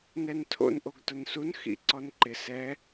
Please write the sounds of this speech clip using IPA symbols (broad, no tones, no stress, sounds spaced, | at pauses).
n ɛ n tʰ o̰ n ʔ o ɡ t ʊ n s u n x ḭ ǀ ɔ n ǃ ɪ s ɛ